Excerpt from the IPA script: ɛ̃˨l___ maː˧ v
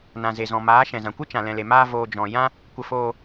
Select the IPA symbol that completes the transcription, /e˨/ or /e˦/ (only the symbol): e˨